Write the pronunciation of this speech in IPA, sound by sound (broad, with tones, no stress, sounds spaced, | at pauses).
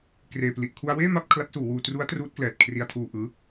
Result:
k r eː˨˩ p l i˨˩ ʔ kʰ u˧ a̯ w eː˥˩ m a˥˩ p̚ kʰ l a˦˥ t̚ s uː˩˦ w uː˧ t r u˦˥ a̯ t r uː˦˥ t̚ k l ɛː˨˩ t̚ kʰ r i˧ a̯ tʰ uː˧ ʔ ɯː˦˥